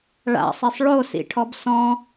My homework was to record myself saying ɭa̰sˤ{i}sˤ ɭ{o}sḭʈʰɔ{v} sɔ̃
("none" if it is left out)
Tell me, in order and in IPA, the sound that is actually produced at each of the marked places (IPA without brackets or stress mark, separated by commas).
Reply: e, o, b